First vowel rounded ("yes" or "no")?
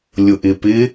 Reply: yes